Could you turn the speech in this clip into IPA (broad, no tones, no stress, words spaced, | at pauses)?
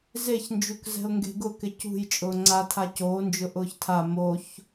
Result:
zeçnd͡ʒuk zɛ̤ʊ̯ŋɡe̤ɡʊkɪ cṳj t͡ʃʼʊːŋ͡ǀatʰa coːnd͡ʒʊ ʔʊːçtʰa moç